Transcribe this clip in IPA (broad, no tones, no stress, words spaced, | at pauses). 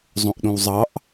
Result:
zˤõʔɗõwzˤɑʔ